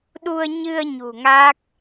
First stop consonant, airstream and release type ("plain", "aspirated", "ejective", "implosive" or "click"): implosive